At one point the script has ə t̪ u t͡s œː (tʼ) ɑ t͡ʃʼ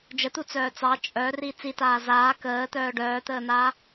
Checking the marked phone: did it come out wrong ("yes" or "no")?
yes